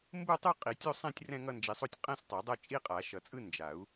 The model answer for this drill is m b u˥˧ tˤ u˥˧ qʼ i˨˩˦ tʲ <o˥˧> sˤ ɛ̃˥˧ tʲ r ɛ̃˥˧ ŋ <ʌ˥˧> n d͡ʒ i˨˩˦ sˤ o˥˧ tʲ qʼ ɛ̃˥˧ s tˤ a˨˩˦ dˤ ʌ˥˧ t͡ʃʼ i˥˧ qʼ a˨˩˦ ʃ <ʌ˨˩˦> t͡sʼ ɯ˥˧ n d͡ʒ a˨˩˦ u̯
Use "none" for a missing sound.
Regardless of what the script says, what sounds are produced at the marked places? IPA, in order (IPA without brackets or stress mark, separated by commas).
o˥˧, ʌ˥˧, ʌ˨˩˦